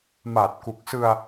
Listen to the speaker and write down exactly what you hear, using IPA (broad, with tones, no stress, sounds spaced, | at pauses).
m a˨˩ t̚ k u˨˩ k̚ s ɯ˧ a̯